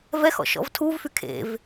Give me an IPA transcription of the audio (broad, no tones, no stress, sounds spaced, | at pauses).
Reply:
v ɛ x ɔ̰ ʃ ɔ̰ v tʰ u v f y kʰ ḛ v